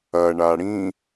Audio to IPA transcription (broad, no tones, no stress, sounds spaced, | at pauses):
ɐ ɳ a ɽ ĩ